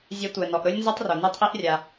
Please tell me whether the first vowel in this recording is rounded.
no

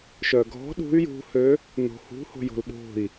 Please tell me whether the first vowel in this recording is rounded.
yes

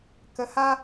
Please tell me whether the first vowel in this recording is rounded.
no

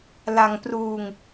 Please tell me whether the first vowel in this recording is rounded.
no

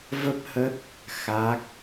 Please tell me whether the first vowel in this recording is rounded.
no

